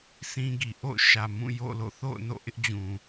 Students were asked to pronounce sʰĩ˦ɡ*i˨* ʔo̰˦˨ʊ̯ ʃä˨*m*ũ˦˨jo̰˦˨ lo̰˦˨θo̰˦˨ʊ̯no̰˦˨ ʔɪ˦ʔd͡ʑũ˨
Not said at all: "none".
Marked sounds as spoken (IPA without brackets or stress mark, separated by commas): i˨, m